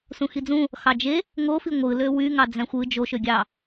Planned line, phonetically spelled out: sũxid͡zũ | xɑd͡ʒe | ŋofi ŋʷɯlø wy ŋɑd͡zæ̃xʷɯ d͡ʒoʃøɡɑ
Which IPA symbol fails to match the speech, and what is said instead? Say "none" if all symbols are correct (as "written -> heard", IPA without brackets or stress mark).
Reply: ɡ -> ɡʲ